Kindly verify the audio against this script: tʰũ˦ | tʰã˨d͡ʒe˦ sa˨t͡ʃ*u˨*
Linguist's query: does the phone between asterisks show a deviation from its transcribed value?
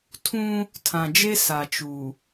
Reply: no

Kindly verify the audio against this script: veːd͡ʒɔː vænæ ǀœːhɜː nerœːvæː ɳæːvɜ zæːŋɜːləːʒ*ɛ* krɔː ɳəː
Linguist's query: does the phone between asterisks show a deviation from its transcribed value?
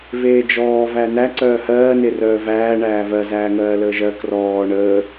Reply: yes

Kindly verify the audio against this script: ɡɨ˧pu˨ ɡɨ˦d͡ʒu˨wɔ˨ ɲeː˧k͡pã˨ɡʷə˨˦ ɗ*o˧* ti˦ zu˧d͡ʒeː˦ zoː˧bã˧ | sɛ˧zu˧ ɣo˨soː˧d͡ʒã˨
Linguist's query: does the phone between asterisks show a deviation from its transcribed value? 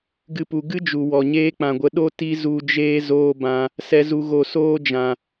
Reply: yes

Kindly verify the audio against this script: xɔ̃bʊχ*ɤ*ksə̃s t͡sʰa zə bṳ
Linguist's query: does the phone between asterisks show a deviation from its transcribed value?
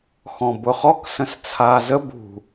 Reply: yes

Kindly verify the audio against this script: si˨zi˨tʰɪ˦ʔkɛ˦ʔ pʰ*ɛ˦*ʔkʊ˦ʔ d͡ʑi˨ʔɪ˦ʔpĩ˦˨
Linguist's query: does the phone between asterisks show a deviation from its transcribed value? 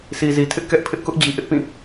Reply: yes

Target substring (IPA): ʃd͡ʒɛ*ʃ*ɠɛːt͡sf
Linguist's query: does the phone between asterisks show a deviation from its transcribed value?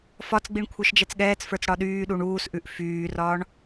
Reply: yes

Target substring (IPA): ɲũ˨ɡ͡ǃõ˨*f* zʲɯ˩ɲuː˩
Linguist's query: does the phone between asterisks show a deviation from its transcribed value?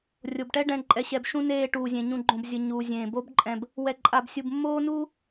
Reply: yes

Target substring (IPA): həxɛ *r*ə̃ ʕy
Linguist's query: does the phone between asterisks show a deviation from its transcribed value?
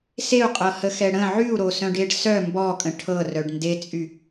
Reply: yes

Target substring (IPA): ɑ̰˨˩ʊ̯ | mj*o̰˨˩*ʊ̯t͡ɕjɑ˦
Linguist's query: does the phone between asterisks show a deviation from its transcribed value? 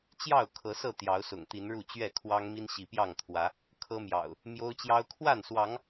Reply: yes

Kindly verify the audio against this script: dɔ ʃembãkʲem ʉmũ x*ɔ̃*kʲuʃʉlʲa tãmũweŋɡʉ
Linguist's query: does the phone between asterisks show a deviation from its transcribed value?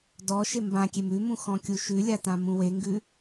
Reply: no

